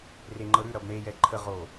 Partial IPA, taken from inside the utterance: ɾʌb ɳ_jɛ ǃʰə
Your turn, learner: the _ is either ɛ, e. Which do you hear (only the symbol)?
e